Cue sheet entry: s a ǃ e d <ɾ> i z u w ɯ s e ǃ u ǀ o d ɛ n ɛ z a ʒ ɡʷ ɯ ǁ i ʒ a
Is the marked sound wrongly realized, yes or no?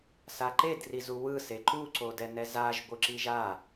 yes